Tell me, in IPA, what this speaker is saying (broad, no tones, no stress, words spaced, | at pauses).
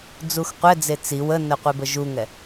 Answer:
d͡zuxqʷɛd͡ze t͡si wənə qʷɛbəʒuŋɛ